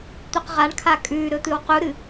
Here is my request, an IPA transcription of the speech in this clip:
t̪ʉqʁaɳkʰa kʼʉ ɾɵt̪ɨwquɾɨ

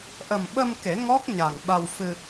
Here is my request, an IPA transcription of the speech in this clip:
ʔə˨˩mɓə˧m ke˨˩˦ ŋɔ˦˥k̚ ɲa˨˩ŋɓa˧wfɨ˧

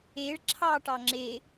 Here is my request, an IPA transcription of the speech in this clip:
eɭ ǁʰɑ ʈɑŋ͡ǁe

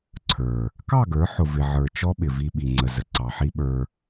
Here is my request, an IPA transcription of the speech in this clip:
ǀʰə˞˨ | kɑ˦˨ɡə˞˨˦ħʊ˨ vɪ˨ʕə˞˨t͡ʃɔ˦ ɓɪ˨vi˧ɓi˨ŋ͡ǀə˨ zə˨ǀɑ˨ħi˦ɓə˞˧

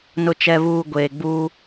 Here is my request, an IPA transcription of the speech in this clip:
nʊ˨t͡ʃɛ˨βuː˨ ɡʷeː˨ɡ͡buː˦

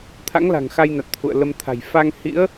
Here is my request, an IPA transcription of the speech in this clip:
t̪ʰa̰˧˥ŋla̤˨˩ŋxa˧jna˨˩t̚ t̪ʰṵ˧˨ə̯lə˧mt̪ʰa̤˨˩j fa˧ŋhḭ˧˥ə̯

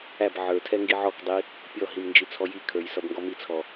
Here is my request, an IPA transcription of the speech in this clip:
æb ʕə˞tʰɛ ŋɡiʕɔkdˤi | pʲɔɦim nd͡ʒit͡sʰɔjikʰə˞j sʌbŋɡɔmit͡sʰɔ

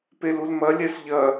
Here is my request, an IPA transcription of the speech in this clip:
pelulmɐ lʲɛsʎɐ

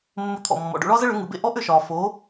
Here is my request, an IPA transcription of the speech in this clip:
mːʊ˧t̪ʰɔ̰˩mːɔ̰˩ɖo̰˧ ɭɒ˥zə˥ɭʏ˩˥ ŋɯ˩bḛ˥˩ ʔɔ˥ʔʏ˥˩ʃɒː˩ fo˩˥

